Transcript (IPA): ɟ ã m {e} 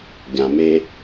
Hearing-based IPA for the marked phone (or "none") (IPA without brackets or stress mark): e